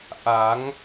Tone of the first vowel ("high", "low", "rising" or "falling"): rising